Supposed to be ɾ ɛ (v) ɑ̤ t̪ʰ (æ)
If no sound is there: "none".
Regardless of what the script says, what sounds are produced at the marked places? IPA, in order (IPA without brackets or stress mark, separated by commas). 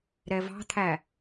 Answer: v, æ